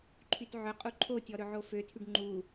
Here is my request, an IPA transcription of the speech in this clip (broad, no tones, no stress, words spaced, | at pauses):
ǃʰytʕɵqʼu ǃʰotʲɔ ɾɵʕoføtʰyɖ ŋ͡ǃu